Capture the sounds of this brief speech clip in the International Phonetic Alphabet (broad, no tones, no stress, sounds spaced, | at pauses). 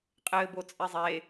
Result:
qʼ ɘː b o t͡sʼ e zˤ e